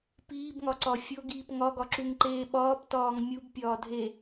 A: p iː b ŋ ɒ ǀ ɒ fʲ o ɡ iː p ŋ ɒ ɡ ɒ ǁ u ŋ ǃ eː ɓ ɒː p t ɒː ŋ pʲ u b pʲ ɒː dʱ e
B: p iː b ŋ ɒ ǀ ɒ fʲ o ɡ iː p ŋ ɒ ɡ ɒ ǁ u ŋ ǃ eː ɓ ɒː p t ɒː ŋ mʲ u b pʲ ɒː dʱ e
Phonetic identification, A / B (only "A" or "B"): B